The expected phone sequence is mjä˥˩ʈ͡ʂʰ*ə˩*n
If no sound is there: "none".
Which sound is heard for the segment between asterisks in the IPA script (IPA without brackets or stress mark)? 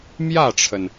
ə˩